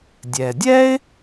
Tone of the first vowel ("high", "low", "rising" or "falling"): low